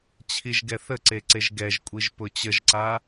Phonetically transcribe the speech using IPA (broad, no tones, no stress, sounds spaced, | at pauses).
t͡ɕʰ i ʒ ɡ ɛ θ ə ǀ e ǀ e ʒ ɡ ɛ ʒ kʷʼ i ʒ p ʊ t͡ɕ ə ʒ ǀ a